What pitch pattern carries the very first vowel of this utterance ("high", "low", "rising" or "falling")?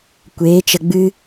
rising